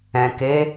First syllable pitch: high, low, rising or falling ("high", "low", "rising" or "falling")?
low